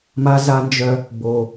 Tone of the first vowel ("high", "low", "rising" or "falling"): high